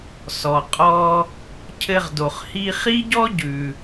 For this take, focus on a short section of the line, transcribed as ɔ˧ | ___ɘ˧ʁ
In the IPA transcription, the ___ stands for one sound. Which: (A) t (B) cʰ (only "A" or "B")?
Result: B